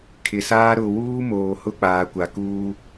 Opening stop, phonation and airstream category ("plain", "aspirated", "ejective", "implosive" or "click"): aspirated